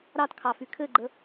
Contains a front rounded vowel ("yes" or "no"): yes